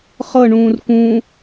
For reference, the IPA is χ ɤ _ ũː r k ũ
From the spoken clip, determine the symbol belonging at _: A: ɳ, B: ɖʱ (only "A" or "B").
A